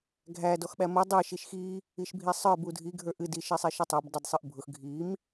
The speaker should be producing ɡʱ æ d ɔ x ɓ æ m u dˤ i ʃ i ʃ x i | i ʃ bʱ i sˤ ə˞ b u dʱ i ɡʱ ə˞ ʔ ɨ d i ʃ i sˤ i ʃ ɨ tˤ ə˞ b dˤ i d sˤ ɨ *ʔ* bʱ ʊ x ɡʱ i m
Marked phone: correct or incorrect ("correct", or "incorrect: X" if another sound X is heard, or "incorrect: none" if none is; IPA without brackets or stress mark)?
correct